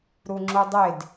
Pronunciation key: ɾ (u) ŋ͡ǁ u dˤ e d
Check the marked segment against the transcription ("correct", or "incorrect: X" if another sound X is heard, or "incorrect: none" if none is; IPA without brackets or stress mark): correct